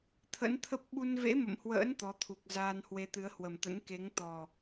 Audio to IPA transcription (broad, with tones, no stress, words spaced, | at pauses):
t̪ʰə̰˧˥nt̪ʰə˦˥p̚ ɓu˧nvḛ˧˥mə̰˧˨mhwə̰ː˧˥n t̪ɔ˨˦t̪ʰu˨˩k̚ zaː˧nhwe˨˦t̪ɨ˨˦ə̯hwə˨˩m t̪ə̰˧˥nke˨˦ŋ t̪ɔ˨˩